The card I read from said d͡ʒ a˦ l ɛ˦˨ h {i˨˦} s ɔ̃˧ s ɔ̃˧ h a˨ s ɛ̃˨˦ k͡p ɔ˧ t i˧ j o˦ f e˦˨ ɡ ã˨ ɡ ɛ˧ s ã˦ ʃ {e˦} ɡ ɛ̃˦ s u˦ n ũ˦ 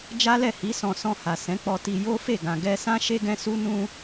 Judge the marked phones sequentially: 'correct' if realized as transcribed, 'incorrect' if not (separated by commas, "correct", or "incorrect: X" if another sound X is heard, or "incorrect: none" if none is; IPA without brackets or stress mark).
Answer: correct, correct